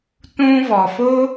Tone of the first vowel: high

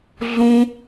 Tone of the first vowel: high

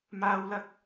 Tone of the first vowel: high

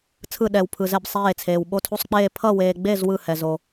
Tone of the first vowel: falling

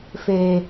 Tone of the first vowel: high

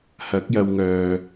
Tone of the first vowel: rising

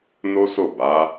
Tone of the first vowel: high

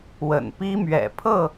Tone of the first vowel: low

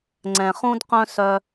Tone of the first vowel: low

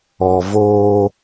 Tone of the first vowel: low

